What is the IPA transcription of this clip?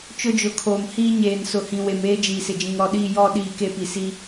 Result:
t͡ʃ ʊ˦ d͡ʒ ʊ˨˦ kʰ oː˨ m h iː˦ ɲ eː˨ n s ʊ˨ h ĩ˨ w e˨ m eː˦ d͡ʒ iː˨ s ɪ˨ d͡ʒ ĩ˨ ŋ ɾ ɔ˨ ɗ iː˦˨ j ɔ˦˨ ɗ iː˦˨ k e˦ p i˨ s i˦

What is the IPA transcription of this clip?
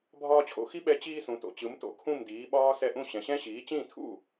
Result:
bʱ ɒː˧ t͡ɕʰ o̰˧ x i˥ ɓ ɛ˧ t͡ɕ iː˧ s ũ˩ t o̰˩ t͡ɕ ɯ˩˥ m t o̰˩˥ kʰ ũ˥˩ m d iː˩˥ ɓ ɒː˥ s ɛ˥˩ ʔ ũ˥˩ ɕ ɛ̃˩ ɕ ɛ̃˥ ɕ iː˩˥ t͡ɕ ĩ˥˩ tʰ ṵ˥˩

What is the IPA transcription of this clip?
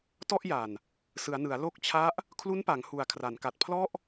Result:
t ɔ˥˩ ʔ j a˨˩ n | s ɯ˩˦ a̯ n ɯ˩˦ a̯ l o˦˥ k̚ t͡ɕʰ a˦˥ ʔ | kʰ l u˦˥ n p a˩˦ ŋ h u˩˦ a̯ kʰ r a˩˦ n k a˨˩ t̚ pʰ l ɔ˥˩ ʔ

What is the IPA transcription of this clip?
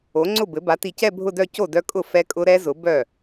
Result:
o˩˥ ŋ͡ǀ ʊ˥˩ b ɘ˩˥ b a˩˥ t i˨ c ɛ˥˧ bʱ ʊ˥˧ d œ˥˧ c o˥˩ d œ˦˥ kʼ ʊ˥˩ f ɛ˦˥ kʼ ʊ˦˥ ɾ ɛ˦˥ z ʊ˩˥ b œ˥˩

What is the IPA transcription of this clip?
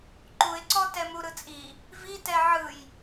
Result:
ǃ u ɪ̯ ǀ ɔ t ɛ m u ɾ ɯ t͡sʼ i | v i t ɛ ʕ ɯ j

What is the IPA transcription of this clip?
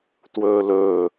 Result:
t w ɵː l ɵː

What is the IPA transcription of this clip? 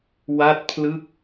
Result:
w a˥˩ t̚ pʰ l ɯ˥˩ k̚

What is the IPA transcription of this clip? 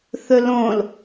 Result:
θ ɵ l õ l

